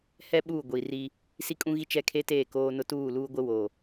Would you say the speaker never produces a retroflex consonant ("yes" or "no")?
yes